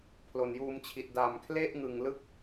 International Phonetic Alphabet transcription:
pʰlo˨˩njuː˧mt͡ɕʰi˨˩t̚ da˨˩mkʰle˥˩ʔŋɯ˨˩ŋlɯ˦˥k̚

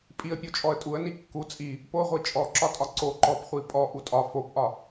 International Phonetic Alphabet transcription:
pʼiə̯pʲot͡ʃʼɔə̯ tʼuə̯ni kːu t͡sʼi | poʁʷi t͡ʃʼɔǁɒtʼɒ ǀo ǃɔpχʷi pʼɔʔu tʼɒ fopʔɒ

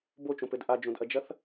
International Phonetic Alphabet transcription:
bot͡ʃõpɘd ʔad͡ʒõdʔɐd͡ʒɐθ

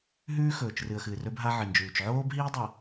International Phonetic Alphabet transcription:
ɦʉː˦xɵː˨t͡ʃrɨ˨ə̯ xɨ˨ rɵ˦bɦa˦ʕɨ˨nd͡ʒʉː˨t͡ʃ ʕoː˦bɦiː˦dˤɐ˨

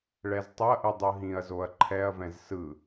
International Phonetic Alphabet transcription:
ɭɛztˤʏɐ̯ʔɯ dˤɯɦĩɐ̯zoɐ̯ ǃʰɛɐ̯vɛ̃z sɯ

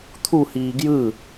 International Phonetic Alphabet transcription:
t̪ʰuhiː ɡjɯ

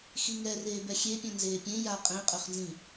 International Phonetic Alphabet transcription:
xiŋɛ reːbɛxʲepʲœ̃ nzeːpʲẽ ja qʼẽqʼøχnzĩ

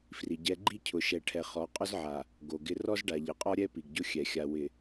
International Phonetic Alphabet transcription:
fri˨ ɟɛ˨ ɡ͡ǃi˦cʰʊ˨ʃɛ˨ ʈʰɛ˨χɔ˨˦qʼʊ˦zʕa˨ | ɡo˨ɡɪ˦ rɔ˦zɖa˨ʎɪ˨qʼɔ˦ ɾʲɛ˦ pi˨ɡɟʊ˦xʲɛ˨xʲa˨ wɪ˨

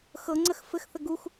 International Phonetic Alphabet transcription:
xɤŋ͡ǀəx fɘxθə ɡux

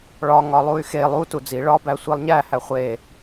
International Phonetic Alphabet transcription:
ɭɒ ŋɒlˠuy̯xe lˠu tud͡zi ɭɒ bæsʷilˠɲæ hæχʷe

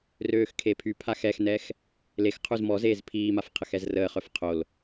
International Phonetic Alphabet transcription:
røːxkʰepʰypʰax ɛxnɛx | lexqʰuz mɔzeːz pʰiːmaf qʰəxɛzrəːχœf qʰol

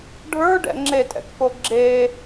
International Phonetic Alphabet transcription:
ɖʱə˞ɖɛ̰ ŋ͡ǁetʼɛ̰kfo ɡ͡ǁe

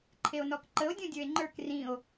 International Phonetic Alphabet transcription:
ǃʰeo̯nɔkǃəo̯ dʲũdʲə˞e̯ŋ͡ǃə˞k rĩo̯

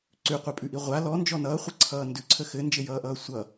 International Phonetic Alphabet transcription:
ǀʉqʷɛpʼʉʔi ʁʷa lɔnd͡ʒɔ nʌːχʷɘǀʰʌː ndʉǀʰə xɘnd͡ʒɘjʌːʔʌː sʷʌ

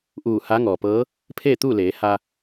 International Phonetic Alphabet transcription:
ʔuː˧˩ ha˧˥ŋɔː˩pɤː˧˥ | pʰeː˥˨t̪uː˥˨leː˩˧ ha˧

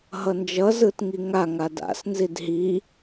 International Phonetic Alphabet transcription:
ɦʌnd͡ʒʌ zɯtŋiŋa ŋada̰s nzidɦi

